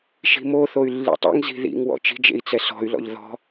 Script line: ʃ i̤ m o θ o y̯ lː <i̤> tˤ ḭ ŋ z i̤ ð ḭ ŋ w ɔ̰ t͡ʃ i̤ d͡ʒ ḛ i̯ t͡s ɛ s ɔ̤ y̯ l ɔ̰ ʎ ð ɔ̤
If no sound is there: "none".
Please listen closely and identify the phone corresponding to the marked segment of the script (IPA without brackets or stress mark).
ḭ